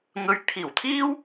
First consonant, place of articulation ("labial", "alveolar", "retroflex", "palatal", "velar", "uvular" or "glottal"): velar